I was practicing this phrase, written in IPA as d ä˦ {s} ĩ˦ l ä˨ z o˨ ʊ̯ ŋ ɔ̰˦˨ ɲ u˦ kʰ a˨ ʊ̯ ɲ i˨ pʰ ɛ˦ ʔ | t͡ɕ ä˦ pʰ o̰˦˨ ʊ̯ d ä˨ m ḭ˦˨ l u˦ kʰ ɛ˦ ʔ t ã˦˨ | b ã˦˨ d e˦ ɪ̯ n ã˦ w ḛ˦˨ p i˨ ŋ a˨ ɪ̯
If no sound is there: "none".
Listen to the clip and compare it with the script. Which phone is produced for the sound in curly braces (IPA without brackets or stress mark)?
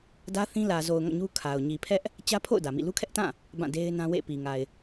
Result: θ